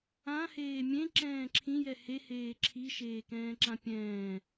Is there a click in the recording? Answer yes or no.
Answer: yes